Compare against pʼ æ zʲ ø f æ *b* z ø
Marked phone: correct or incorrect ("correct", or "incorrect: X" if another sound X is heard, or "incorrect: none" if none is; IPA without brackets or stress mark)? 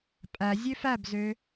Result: correct